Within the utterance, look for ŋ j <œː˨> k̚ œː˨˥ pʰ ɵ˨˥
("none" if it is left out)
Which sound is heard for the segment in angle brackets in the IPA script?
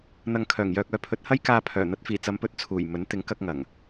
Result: œː˨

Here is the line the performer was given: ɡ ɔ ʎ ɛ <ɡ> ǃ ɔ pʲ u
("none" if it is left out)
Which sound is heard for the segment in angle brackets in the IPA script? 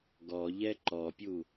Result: none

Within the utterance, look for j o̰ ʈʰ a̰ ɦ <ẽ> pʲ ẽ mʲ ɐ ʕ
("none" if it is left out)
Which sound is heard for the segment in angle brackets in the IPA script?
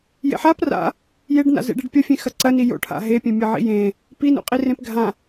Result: e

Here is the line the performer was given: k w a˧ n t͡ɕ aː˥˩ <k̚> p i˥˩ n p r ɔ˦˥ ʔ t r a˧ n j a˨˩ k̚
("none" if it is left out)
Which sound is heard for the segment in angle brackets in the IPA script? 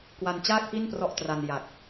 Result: k̚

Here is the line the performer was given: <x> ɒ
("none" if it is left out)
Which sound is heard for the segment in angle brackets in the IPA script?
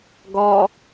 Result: ɡ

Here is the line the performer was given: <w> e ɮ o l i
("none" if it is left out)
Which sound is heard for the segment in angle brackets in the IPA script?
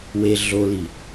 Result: w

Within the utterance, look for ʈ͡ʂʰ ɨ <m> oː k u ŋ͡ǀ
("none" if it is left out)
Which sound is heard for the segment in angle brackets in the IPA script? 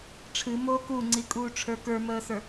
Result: m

